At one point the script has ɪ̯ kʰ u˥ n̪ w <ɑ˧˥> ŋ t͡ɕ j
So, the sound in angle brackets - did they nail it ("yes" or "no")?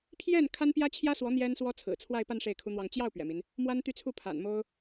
no